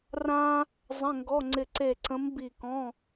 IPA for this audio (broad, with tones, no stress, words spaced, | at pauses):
rã˥ | zˤə̃˧˥˧ŋɡɔ˧˥˧ŋ͡ǀɪ˦˨ ǀe˦˨ǀə̃˧˥mbi˦˨kɔ̃˧˥˧